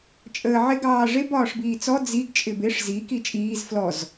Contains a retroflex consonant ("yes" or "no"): yes